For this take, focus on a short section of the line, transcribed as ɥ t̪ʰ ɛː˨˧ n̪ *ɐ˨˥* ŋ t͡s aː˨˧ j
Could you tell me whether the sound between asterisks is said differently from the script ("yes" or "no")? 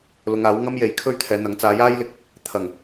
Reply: no